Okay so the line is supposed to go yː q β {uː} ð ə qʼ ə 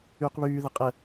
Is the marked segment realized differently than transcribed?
yes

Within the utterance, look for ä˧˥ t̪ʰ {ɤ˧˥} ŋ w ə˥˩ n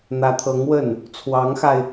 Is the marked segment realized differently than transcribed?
no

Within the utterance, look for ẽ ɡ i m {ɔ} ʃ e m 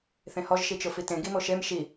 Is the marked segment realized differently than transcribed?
yes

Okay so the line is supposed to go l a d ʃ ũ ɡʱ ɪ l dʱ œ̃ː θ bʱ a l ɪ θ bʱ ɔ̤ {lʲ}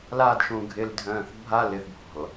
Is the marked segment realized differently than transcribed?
yes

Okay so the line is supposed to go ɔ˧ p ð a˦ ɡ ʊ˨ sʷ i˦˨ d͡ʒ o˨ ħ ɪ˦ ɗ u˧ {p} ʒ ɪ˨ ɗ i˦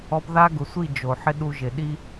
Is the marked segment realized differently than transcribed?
yes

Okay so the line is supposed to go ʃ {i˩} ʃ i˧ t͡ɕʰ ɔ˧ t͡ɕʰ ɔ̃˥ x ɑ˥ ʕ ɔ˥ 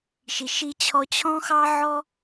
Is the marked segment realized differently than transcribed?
no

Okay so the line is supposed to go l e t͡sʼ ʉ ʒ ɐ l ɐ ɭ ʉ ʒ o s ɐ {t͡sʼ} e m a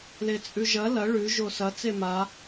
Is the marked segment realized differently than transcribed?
yes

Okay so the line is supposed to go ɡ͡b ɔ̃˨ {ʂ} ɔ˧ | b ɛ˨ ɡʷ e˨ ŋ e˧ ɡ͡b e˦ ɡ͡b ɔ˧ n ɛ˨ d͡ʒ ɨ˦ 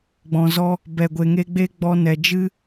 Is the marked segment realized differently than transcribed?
yes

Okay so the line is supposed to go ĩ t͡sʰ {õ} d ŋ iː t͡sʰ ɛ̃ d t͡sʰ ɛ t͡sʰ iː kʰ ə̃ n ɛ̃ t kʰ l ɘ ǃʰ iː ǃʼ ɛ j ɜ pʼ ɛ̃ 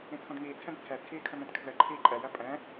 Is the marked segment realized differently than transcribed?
no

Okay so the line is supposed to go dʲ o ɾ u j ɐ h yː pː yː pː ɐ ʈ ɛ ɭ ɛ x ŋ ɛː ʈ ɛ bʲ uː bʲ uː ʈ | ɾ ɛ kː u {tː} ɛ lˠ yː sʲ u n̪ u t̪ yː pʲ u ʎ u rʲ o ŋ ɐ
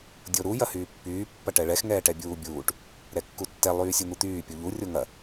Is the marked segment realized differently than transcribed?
no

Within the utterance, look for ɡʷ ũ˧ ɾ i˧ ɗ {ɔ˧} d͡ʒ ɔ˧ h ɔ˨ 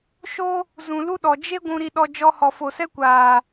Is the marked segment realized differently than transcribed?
no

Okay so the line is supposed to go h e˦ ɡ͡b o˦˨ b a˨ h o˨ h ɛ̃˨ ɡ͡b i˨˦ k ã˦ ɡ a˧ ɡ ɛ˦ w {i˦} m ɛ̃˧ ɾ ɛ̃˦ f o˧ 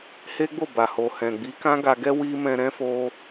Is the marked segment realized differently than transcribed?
no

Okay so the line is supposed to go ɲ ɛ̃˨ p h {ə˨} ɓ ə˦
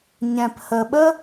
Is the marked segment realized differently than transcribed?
no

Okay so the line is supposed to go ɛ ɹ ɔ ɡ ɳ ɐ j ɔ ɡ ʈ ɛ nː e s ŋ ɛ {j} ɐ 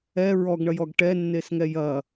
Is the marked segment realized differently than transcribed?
no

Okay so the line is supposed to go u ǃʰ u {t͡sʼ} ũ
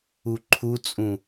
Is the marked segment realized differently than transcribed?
no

